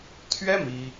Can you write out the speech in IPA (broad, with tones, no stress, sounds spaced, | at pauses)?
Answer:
t̪ʰ ɥ ɛ˥ m i˥